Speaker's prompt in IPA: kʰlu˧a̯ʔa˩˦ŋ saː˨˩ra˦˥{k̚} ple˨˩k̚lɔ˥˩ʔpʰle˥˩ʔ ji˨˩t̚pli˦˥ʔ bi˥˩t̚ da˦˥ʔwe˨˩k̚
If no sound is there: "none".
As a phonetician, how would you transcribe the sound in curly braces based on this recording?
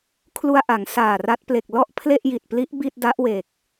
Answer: t̚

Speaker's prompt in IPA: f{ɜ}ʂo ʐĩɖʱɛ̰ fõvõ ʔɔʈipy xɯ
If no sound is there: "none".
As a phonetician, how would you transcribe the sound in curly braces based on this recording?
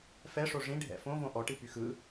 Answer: ɛ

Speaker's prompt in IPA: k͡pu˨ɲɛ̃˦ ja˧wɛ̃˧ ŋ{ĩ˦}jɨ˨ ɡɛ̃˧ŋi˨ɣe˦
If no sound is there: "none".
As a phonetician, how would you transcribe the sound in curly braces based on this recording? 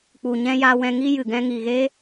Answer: i˦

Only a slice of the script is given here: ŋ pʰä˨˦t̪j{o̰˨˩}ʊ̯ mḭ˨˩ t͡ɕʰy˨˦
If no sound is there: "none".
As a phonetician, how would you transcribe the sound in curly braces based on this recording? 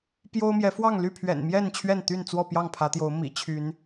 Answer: o˨˦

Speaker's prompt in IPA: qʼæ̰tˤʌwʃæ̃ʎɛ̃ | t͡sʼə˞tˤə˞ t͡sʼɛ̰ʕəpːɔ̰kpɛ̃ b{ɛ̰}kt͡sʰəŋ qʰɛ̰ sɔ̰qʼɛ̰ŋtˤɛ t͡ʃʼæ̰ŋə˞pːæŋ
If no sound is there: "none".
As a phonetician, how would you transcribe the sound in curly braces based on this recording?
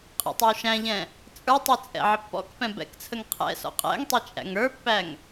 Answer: ɛ̰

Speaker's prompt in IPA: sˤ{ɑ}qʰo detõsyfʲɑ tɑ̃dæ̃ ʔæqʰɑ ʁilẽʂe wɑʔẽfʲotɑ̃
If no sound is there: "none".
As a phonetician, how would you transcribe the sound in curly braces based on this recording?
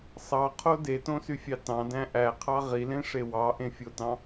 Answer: ɑ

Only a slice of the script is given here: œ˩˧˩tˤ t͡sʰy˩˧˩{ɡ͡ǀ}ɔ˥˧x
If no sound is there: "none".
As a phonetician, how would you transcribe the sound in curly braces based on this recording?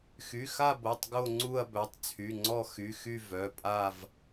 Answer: ŋ͡ǀ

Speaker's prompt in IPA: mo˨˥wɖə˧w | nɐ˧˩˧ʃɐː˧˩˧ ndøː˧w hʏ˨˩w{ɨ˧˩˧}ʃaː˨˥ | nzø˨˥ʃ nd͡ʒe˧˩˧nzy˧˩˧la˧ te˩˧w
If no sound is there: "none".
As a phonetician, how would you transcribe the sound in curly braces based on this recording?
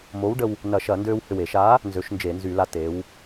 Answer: e˧˩˧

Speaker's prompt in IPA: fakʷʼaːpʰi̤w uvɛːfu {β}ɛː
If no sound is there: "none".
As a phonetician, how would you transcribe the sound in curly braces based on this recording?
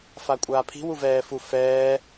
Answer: f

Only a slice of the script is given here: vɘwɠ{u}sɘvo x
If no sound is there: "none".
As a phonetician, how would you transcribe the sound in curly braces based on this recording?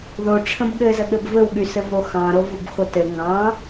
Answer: y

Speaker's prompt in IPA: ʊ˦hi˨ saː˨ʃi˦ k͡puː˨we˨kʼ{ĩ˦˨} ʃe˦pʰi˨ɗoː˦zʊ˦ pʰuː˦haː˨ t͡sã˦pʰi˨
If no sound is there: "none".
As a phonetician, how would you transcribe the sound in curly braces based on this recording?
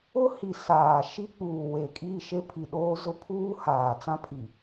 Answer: i˦˨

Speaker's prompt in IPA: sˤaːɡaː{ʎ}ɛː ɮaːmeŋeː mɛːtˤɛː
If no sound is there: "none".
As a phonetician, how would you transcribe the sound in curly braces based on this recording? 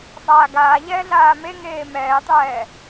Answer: ʎ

